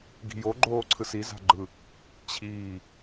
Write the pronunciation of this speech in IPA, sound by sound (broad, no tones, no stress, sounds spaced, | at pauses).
ɡ i̤ j o ɡ͡ǃ oː ǀʰ ɯ s i z a̤ ɡ͡ǃ ɯ | t͡ɕʰ iː